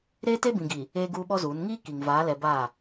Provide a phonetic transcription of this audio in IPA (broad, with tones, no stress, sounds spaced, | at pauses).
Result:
ɾ eː˦ t e˦ b ĩ˨ ɡ i˨ | eː˦ ɡ uː˦ ɓ ɔ˦ z uː˨˦ n ŋ iː˦ k i˨ ŋ v aː˨˦ l ɛ˨ b a˦˨